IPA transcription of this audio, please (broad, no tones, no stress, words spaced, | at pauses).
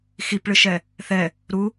xipɭɨʃɛ | θɛ | ɾu